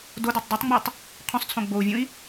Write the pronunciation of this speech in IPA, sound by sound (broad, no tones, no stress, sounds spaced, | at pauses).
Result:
d o d e tˤ dˤ ɨ tˤ ŋ͡m y tˤ | qʰ õ sˤ t͡sʰ õ ɡ͡b o u̯ vʲ ũ i̯